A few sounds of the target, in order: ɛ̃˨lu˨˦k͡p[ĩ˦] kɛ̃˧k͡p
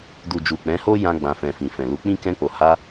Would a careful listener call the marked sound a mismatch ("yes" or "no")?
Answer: no